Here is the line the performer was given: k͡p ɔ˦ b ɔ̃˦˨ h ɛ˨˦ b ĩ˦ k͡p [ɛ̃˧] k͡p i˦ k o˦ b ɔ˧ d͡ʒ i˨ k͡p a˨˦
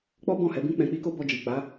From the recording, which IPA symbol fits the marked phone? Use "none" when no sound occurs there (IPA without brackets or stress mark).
ɛ̃˧